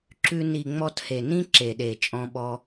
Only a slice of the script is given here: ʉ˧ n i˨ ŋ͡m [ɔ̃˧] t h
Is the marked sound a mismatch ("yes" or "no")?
yes